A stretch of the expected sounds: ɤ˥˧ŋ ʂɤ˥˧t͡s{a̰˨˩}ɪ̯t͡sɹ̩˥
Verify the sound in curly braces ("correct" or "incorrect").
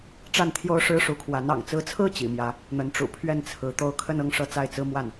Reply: incorrect